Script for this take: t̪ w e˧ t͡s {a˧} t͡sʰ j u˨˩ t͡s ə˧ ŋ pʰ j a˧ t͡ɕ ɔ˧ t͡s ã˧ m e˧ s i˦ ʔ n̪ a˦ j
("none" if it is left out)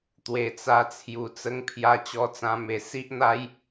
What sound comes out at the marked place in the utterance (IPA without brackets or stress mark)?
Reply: a˧